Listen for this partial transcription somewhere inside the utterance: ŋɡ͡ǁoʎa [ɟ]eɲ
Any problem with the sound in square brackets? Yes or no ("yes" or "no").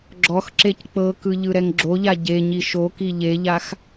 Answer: no